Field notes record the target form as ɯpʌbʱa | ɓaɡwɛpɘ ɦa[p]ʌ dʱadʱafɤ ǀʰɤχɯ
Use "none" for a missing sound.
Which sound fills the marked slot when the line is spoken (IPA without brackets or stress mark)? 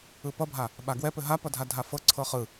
p